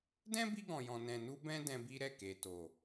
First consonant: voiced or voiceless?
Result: voiced